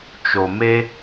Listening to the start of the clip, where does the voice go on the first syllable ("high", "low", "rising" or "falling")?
low